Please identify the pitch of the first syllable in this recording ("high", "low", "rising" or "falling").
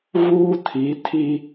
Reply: high